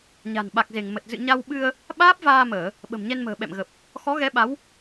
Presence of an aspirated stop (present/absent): absent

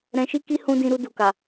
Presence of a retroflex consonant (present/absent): absent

